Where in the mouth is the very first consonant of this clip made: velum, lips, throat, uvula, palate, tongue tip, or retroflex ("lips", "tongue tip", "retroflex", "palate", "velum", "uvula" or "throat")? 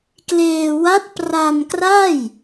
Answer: velum